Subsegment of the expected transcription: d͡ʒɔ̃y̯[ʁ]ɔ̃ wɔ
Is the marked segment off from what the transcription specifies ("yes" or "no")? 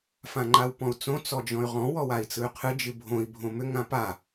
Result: no